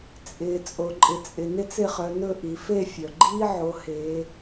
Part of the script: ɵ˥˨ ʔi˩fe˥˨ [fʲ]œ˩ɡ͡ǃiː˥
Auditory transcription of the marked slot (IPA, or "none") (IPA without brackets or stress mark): fʲ